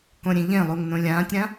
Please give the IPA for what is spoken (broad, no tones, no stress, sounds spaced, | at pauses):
k õ ɾʲ ẽ ʎ ẽ lˠ u ŋ n õ lʲ ãː tʲ ɾ ã